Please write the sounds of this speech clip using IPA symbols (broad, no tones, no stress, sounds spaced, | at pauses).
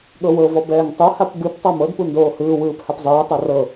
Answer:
ɠ ɤ w ɤ v ɔ b ɛː ŋ tˤ u h a p b ɯ p tˤ a m ɤ d p u n d oː h ɯː w ɯː p h a p zˤ ɯː tˤ a r ɤ